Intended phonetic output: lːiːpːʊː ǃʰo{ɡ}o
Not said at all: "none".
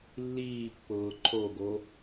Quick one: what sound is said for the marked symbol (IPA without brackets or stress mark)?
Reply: ɡ